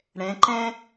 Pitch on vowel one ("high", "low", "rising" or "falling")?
rising